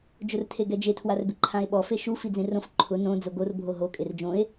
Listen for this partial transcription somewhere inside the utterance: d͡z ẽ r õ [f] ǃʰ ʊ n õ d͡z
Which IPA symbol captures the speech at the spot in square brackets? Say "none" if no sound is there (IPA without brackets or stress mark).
f